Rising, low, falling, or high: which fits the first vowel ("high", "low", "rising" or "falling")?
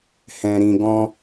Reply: low